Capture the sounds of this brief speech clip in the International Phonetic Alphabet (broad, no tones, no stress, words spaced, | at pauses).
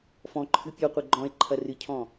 fɔ̃ǃʰɨ pʲɔqʷɛ ɡ͡ǃɔ̃e̯ ǃʰɐrɨcʰɔ̃